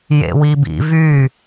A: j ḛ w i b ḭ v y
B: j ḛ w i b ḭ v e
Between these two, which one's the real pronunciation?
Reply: A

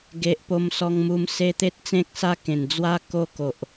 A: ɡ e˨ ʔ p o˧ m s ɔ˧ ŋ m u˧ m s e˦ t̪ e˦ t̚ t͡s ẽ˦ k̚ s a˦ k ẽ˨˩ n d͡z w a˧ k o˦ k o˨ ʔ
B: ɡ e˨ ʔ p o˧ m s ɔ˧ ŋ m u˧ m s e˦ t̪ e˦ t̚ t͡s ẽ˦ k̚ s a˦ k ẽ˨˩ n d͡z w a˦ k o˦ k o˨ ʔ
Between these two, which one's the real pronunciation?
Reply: B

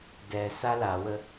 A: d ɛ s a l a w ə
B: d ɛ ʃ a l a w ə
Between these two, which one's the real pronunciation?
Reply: A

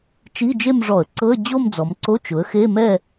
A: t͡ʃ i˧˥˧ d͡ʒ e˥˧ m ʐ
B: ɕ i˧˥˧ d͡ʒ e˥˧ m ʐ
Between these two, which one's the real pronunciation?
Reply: A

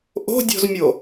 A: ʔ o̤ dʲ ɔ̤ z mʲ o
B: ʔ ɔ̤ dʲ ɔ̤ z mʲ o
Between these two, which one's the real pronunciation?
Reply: A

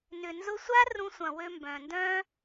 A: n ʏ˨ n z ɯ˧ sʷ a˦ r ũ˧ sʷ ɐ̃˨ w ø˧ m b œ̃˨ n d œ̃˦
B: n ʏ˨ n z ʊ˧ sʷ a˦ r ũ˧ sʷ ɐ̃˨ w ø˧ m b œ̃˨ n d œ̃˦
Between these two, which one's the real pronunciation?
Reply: B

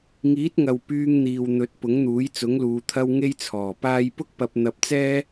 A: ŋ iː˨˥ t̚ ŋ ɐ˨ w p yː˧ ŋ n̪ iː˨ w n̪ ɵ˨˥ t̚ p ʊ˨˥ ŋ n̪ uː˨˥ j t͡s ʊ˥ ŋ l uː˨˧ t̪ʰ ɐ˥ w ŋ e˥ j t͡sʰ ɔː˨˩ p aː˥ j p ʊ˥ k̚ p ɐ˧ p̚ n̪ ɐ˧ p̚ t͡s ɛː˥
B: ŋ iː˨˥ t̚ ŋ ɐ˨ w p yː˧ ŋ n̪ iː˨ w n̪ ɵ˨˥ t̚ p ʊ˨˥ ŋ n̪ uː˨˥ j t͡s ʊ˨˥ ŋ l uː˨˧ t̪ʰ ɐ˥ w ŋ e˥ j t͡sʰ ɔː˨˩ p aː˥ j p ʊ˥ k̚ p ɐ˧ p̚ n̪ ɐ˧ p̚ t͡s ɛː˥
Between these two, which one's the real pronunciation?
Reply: B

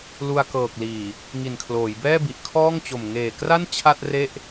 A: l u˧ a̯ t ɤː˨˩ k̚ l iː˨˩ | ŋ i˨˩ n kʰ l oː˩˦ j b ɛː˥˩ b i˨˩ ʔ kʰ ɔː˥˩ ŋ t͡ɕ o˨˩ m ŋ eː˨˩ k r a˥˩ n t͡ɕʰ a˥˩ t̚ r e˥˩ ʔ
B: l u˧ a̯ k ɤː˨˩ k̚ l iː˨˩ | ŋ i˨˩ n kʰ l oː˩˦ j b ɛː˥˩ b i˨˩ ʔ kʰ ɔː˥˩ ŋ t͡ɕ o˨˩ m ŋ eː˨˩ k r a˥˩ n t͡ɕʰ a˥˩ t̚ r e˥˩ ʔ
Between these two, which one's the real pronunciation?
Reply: B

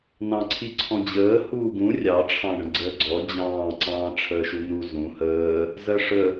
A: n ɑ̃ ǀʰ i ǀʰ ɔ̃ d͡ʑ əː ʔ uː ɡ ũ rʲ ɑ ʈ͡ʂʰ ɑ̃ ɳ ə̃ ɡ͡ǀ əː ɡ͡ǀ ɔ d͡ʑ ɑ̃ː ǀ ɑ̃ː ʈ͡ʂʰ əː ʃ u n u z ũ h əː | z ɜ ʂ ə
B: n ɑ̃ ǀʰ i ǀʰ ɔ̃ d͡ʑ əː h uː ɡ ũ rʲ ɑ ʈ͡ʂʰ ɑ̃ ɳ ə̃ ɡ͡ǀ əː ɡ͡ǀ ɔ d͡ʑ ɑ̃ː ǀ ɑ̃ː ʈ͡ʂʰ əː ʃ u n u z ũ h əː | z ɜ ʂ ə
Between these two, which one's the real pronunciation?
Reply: B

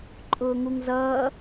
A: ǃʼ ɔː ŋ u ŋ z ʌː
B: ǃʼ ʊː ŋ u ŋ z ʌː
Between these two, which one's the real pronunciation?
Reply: B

